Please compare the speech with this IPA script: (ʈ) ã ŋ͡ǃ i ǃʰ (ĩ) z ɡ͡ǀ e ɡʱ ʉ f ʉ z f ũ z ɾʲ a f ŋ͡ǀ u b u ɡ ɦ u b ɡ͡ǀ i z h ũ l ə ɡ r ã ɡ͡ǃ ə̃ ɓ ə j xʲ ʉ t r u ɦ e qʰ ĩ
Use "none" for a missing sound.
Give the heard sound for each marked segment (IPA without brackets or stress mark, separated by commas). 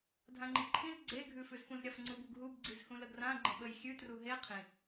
dʱ, ĩ